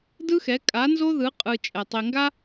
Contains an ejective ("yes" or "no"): yes